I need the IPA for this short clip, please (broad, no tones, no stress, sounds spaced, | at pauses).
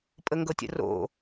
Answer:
pʼ ə ŋ ɡ ɤ tʲ ə̰ r o̰